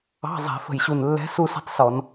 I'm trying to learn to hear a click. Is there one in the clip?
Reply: no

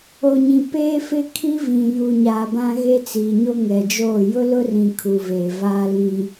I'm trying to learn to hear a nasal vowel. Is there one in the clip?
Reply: yes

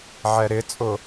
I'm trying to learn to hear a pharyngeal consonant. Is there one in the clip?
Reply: yes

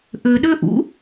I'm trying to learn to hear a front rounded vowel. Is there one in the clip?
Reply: yes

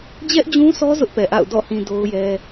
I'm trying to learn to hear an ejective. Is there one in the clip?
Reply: no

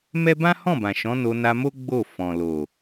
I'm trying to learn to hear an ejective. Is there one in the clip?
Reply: no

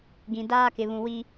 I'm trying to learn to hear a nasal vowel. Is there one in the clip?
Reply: yes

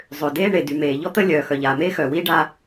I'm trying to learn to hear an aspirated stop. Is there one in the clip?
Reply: no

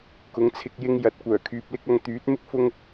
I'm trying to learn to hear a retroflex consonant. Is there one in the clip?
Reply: no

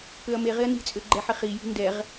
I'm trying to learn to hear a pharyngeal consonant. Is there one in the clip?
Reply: yes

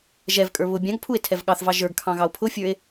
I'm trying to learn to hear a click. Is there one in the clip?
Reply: no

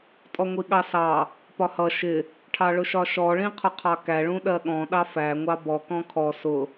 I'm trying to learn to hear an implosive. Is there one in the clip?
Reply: yes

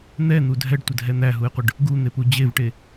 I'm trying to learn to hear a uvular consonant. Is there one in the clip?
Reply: yes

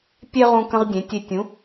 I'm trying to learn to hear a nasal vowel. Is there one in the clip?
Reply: yes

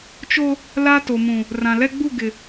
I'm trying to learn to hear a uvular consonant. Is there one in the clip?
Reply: no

